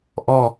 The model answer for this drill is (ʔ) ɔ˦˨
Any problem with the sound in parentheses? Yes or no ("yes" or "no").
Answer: no